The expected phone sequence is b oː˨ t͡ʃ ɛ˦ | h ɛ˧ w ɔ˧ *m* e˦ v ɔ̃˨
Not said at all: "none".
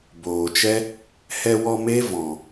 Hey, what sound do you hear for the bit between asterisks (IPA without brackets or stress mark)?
m